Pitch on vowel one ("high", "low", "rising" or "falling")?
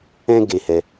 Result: high